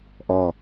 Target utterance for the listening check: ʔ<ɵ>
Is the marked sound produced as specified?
no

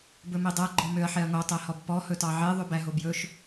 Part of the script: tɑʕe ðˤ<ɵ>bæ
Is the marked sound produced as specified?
no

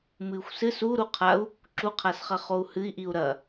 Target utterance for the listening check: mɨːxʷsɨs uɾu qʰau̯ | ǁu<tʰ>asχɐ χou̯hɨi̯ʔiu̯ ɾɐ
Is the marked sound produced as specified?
no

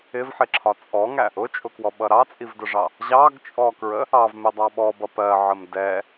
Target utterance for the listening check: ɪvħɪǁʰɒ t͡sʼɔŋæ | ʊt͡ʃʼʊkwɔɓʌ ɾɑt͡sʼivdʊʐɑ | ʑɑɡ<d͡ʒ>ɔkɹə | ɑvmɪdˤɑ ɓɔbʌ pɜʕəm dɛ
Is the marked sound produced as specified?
no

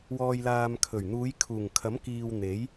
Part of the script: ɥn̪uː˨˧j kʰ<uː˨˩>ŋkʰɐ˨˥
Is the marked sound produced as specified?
yes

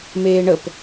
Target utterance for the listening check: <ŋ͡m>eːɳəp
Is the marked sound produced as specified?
no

